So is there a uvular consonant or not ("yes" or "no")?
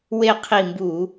yes